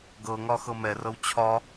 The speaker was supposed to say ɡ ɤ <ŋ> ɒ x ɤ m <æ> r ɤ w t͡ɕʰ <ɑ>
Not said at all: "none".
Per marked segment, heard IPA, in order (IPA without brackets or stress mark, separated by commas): ŋ, ɛ, ɒ